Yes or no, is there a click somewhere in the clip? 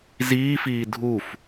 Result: no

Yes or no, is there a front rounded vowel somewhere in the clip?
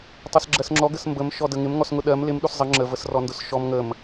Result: no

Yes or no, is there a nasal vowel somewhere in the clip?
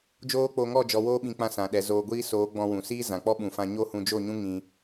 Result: yes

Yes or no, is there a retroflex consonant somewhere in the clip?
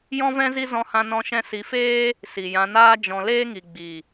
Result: no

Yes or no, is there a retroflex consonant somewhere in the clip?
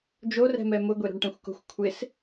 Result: yes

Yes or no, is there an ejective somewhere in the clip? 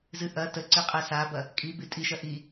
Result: yes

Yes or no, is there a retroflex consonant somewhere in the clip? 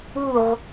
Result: no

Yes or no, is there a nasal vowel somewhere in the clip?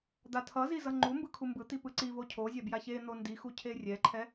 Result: no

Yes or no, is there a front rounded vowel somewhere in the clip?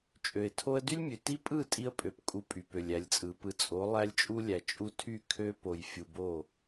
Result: yes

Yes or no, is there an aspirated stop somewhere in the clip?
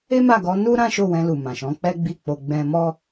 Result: no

